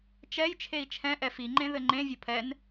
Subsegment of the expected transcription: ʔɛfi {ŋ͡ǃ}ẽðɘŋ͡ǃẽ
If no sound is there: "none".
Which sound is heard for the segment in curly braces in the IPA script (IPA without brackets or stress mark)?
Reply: ŋ͡ǃ